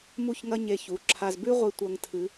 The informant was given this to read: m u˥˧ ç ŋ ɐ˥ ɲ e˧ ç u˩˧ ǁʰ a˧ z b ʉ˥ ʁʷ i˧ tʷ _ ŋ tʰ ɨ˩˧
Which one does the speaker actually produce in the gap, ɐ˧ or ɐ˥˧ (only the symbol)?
ɐ˧